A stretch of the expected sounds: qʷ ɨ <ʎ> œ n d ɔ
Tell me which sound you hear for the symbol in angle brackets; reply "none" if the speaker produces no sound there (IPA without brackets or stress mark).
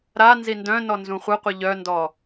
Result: ʎ